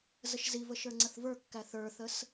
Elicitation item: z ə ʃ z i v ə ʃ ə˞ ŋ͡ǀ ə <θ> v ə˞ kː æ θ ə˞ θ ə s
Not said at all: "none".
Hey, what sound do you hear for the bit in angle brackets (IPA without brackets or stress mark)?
θ